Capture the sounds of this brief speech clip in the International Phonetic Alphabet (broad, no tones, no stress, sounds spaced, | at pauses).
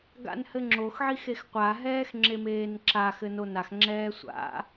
ɡ a̰ n h ɘ ŋ͡ǁ o x ʕ i x e x qʷ a ɦ ɛː x ŋ͡ǁ e m eː n ǁ a x ɘ n o n a x ŋ͡ǁ ɛː sʷ a̰